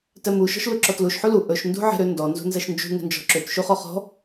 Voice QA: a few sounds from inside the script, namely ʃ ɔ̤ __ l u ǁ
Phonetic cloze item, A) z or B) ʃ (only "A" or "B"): B